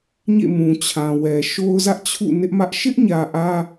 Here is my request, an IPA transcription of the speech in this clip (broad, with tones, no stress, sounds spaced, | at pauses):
ɲ ḛ˦˨ m ũ˨ t͡ɕʰ ã˨ w ɛ˨ ʃ o˦ ʊ̯ z ä˦ ʔ t͡ɕʰ ṵ˦˨ n ɪ˦ ʔ m ä˦ ʔ ʃ ɪ˦ ʔ ɲ ä˨ ʔ ä˦